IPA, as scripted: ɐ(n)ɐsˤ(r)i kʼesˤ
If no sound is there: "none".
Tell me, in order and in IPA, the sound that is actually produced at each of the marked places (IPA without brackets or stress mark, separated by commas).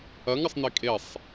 ŋ, n